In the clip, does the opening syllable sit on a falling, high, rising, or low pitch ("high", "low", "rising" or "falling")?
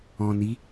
low